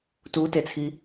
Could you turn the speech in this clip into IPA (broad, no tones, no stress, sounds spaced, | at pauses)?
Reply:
t u t e t͡sʰ i